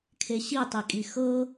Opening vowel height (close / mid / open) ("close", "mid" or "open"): mid